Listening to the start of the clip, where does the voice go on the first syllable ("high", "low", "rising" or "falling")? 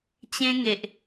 high